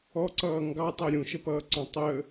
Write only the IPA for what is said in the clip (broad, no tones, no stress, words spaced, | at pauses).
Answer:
ɔǀʌː ŋɡɑtˤɜ ɾʲũʃəpʌːǀɔ̃ tˤə